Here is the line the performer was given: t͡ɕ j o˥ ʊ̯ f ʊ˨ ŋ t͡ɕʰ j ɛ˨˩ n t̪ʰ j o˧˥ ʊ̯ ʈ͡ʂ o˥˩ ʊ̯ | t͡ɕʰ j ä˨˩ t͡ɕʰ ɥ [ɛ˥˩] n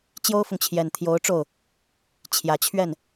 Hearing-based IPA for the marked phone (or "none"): ɛ˥˩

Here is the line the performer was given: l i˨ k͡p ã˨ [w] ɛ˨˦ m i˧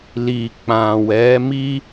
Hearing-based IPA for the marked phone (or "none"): w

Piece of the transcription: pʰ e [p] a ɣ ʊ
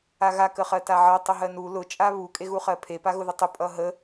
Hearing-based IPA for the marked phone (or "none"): p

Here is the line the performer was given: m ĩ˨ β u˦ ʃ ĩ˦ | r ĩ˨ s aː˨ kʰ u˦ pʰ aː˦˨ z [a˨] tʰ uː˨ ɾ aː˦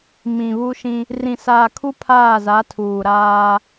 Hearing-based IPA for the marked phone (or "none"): a˨˦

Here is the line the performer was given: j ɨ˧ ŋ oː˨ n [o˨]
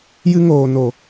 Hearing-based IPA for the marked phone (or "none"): o˨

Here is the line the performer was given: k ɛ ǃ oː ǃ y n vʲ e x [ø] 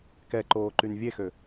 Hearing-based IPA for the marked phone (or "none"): ø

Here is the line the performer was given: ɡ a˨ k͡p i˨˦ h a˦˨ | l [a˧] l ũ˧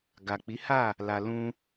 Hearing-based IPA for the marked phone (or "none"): a˨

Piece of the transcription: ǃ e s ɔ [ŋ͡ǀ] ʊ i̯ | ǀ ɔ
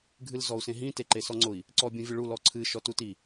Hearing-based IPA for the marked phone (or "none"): ŋ͡ǀ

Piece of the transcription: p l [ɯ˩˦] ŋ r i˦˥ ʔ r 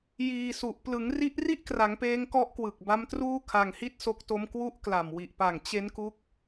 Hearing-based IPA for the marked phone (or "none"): ɯ˩˦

